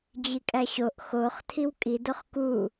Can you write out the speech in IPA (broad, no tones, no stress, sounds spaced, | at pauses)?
d͡ʑ i kʼ æ ɕ o ʔ x o χ tʰ i w kʼ i d o χ k u